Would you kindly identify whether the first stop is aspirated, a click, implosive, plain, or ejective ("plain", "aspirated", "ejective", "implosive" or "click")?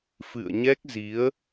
plain